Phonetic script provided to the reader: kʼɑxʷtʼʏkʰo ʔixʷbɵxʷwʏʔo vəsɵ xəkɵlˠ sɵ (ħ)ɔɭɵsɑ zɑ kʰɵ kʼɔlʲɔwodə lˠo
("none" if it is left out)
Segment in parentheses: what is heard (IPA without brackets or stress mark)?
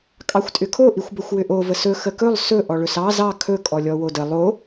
ʔ